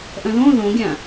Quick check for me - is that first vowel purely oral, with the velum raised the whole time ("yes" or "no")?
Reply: no